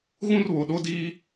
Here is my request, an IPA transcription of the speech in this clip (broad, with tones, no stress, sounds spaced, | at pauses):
ɣ ũ˦ r β o˨ ɗ o˦ d iː˦